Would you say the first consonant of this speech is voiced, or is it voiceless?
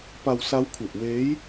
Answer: voiceless